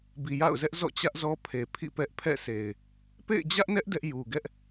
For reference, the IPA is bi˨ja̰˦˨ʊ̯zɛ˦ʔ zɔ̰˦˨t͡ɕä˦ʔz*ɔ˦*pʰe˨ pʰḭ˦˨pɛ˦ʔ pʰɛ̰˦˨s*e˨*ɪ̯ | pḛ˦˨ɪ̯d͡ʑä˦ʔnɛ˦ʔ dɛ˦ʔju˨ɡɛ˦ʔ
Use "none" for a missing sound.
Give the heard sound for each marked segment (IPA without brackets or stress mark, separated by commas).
ɔ˦, e˨